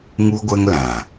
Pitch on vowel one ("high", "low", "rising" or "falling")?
high